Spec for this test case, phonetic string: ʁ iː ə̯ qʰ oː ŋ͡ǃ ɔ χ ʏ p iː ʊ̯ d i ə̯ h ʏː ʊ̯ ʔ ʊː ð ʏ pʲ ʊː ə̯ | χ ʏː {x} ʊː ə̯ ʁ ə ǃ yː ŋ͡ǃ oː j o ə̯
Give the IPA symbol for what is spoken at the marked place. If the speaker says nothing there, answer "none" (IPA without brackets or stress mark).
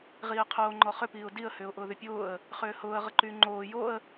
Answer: h